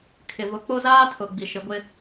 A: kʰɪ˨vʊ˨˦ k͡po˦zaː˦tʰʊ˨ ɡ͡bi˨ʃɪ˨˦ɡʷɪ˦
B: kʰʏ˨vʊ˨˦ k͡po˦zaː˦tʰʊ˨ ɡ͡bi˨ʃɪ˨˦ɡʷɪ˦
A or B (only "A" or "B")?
A